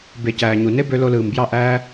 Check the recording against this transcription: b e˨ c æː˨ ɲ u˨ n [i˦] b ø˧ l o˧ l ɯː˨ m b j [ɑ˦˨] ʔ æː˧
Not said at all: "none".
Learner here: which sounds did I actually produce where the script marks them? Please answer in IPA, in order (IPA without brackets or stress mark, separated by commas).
e˦, ɑ˦˨